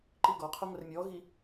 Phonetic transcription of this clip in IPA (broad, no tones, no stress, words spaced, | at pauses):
ǃiɡɔqʰo ŋʷɛrmʲɔɣi